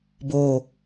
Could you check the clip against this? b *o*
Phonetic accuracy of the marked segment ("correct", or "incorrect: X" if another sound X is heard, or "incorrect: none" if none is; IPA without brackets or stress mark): correct